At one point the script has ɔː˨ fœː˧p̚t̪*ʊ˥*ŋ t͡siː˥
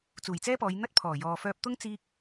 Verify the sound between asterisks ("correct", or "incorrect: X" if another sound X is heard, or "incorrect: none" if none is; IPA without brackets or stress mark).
correct